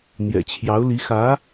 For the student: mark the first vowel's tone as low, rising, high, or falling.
low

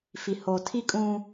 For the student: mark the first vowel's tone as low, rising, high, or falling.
low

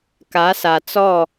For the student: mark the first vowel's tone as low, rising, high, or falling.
rising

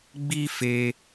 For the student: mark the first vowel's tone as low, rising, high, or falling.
high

